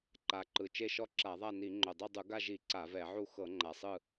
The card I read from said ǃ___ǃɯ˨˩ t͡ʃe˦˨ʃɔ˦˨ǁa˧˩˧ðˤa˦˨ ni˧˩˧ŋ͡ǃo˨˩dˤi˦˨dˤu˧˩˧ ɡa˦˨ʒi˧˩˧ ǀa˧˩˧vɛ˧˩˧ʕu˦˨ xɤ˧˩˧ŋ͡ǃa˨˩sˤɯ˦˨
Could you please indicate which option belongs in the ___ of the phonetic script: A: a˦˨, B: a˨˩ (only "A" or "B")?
B